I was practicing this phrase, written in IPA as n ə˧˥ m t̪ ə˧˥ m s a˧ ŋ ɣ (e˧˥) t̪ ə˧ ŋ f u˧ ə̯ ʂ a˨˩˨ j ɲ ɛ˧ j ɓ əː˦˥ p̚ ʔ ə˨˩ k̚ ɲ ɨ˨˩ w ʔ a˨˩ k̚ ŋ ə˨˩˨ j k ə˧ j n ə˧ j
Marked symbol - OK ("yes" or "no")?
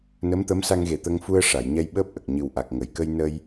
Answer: no